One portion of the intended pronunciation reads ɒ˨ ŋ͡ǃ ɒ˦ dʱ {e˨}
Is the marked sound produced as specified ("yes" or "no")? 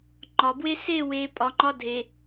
yes